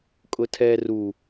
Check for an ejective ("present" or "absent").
present